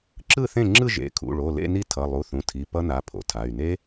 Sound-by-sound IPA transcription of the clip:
ǁ ɯ˥˩ θ ẽ˥˩ ŋ͡ǁ ɯ˥˧ ʒ ḛ˩˧˩ kʰ ṵ˩˧˩ ɭ o˩˧˩ l ḛ˥˧ n i˥˧ tʰ ʌ˩˧˩ lˠ u˩˧˩ θ ũ˩˧˩ tʰ i˩˧˩ p ʌ˦˥ n a˩˧˩ pʰ o̰˩˥ tʰ a˩˧˩ y̯ n e˦˥

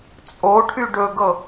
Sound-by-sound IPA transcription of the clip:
t͡sʼ o ʈʰ y ɖ ɵ ɡ ɤ

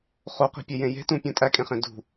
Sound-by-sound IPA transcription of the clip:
χ o q i̤ pʲ e j ẽ j e̤ t ũ pʲ ũ tʼ æ kʼ ẽ χ ẽ d ṳ

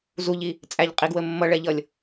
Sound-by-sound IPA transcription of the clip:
z u ʎ i | t͡sʼ æ ʎ qʼ i ɡ w ə mː ʌ ɭ ɛ ʎ ʌ lʲ

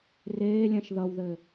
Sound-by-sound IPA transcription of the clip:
r eː lʲ ɛ̃ ʃ ð ʌ w ð ɘ

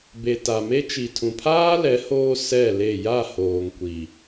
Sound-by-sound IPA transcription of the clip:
b e˨ t a˨ m e˦ t͡ʃ i˨ tʰ ũ˨ pʰ aː˦ l ɛ˨˦ h oː˦ s ɛ˦˨ l e˦˨ j a˦˨ h oː˨ ŋ kʷ i˨

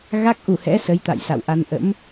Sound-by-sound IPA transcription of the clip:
ɣ a˦˥ k̚ ʔ u˧˩ h ɛ̰˧˥ s ə˨˦ j t̪ a̰˧˨ j s a̰˧˨ w ʔ a˧ n ʔ ə̰˧˥ m

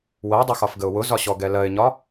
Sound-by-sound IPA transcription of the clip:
w ɜ dˤ ə x ɒ f ɡ ə ʊ̯ w ʊ z ɒ ɕ ɔ ɡ ɛ l ɜ ɪ̯ ɲ ɒ

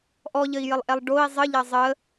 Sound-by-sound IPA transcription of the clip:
ʔ ɔ ʎ ə i̯ j ə lˠ ʔ ɛ lˠ ɖ o i̯ zˤ ə ʎ ɐ zˤ ə

